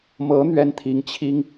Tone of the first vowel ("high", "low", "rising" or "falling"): rising